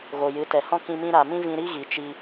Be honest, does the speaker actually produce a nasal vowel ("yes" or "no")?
yes